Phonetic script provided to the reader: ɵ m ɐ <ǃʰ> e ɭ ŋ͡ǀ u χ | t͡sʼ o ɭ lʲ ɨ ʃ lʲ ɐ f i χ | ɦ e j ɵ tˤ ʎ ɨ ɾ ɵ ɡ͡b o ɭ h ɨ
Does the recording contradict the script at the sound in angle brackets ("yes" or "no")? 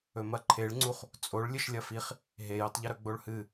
no